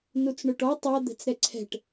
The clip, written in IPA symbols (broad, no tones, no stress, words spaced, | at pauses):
nut͡sɳoʈɔ tˤa d̪ɛ̤t͡sɾɛǀʰɛ̤ʈ